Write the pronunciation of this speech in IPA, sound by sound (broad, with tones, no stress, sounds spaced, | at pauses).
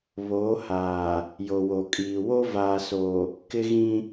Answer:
β oː˨˦ h aː˨ | j o˨ w o˨ kʼ iː˨ w o˦ v aː˨ s o˨ | k ɪ˦ ɣ ĩ˦